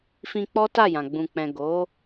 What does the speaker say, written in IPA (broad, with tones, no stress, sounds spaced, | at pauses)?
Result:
f ĩ˧ k͡p ɔ˦ t a˦˨ j ã˨ ɡ͡b ũ˨ k͡p ɛ̃˨ ɡ o˨˦